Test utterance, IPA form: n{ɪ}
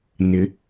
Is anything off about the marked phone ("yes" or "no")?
no